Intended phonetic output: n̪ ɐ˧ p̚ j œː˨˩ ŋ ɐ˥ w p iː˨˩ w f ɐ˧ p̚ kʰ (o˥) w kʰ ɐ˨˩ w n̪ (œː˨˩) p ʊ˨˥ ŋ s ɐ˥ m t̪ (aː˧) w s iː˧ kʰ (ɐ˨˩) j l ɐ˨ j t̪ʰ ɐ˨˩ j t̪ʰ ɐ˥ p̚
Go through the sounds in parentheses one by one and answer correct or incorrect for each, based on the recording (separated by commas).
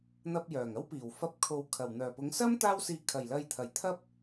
incorrect, correct, incorrect, correct